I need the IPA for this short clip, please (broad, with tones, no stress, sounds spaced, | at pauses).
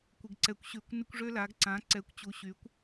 kʷ ɪ˨ ɡ ǀ ɛ˨ kʷ ɕ y˨˩˦ kʷ n ɪ˦ kʷ ʐ ø˦ l a˨˦ ɡ ǀ ã˨˦ ǀ ɛ˨˦ kʷ t͡ɕ u˨˦ ɕ y˨˦ kʷ